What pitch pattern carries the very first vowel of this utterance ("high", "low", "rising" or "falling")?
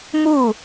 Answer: falling